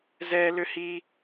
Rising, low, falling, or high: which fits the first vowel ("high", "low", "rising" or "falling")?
high